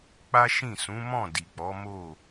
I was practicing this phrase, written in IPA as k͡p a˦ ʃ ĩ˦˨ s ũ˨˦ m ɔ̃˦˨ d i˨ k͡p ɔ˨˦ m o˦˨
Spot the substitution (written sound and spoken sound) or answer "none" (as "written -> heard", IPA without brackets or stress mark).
none